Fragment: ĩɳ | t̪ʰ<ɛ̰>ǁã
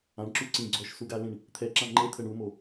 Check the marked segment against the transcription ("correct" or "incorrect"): incorrect